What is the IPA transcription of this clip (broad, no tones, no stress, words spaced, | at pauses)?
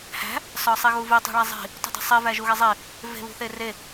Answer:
hæ̤ | sɒsˤiɣuvi tˤṳɭæzˤi̤ | tṳdˤi̤sˤi væʒuɣezˤi | ve̤ βṳθere